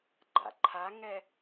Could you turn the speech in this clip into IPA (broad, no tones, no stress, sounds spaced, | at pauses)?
ɡ͡ǃ a̰ ǃʰ a ŋ ɛ